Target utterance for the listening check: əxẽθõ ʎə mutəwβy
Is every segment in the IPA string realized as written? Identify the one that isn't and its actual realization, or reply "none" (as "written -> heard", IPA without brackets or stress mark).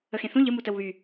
none